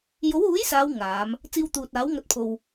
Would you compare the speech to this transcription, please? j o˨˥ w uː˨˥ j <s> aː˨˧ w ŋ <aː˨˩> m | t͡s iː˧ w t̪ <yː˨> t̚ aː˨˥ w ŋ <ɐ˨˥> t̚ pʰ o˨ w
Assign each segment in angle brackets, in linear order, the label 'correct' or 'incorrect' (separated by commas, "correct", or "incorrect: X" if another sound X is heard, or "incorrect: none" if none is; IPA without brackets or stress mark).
correct, incorrect: aː˨˧, incorrect: uː˨, correct